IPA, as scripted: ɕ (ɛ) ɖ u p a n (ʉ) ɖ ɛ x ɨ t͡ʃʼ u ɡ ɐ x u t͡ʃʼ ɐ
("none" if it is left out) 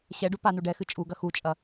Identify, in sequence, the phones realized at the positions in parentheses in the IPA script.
ɛ, u

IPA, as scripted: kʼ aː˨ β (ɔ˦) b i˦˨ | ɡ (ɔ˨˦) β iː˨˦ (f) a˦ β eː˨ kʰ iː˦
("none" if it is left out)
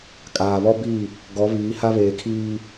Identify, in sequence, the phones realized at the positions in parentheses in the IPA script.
ɔ˦, ɔ˨˦, h

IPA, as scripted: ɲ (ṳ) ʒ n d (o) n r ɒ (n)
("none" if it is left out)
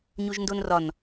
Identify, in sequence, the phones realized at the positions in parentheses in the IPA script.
u, o, n

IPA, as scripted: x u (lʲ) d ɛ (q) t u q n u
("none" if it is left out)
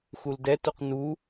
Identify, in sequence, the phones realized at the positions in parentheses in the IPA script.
l, none

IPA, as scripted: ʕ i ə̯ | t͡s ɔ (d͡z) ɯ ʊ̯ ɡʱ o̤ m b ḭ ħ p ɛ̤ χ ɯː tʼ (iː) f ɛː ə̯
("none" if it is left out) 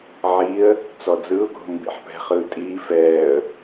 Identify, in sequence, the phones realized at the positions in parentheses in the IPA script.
d͡z, iː

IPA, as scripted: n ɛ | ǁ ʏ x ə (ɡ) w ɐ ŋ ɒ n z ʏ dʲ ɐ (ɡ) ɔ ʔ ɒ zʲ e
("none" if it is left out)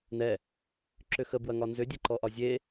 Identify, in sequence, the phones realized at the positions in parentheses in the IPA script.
b, ǃ

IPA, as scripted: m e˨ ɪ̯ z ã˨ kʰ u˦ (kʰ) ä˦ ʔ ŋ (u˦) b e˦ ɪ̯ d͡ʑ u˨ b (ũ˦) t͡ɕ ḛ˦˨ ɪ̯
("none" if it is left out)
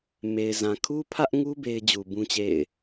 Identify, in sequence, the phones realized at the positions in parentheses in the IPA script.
pʰ, u˦, ũ˦

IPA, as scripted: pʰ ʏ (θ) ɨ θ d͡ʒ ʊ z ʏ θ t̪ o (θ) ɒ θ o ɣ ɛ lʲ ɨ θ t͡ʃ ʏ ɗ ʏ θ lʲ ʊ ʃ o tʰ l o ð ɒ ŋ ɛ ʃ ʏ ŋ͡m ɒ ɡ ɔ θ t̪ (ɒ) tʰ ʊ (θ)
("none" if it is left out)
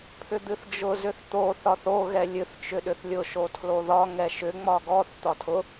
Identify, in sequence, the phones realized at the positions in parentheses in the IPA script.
d̪, θ, ɒ, none

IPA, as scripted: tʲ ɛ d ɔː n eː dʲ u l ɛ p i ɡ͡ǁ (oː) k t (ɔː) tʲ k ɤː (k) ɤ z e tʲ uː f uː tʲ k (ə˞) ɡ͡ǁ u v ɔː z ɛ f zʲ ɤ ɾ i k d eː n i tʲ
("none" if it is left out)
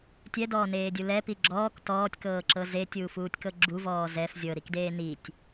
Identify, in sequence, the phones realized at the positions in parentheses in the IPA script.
ɔː, ɔː, ǁ, ɤ

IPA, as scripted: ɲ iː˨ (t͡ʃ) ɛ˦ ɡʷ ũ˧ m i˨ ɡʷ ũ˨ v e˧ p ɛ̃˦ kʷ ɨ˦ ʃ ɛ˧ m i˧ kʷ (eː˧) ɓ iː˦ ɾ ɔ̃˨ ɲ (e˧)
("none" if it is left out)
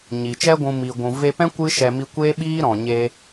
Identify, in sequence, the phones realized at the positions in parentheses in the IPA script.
t͡ʃ, eː˦, e˧

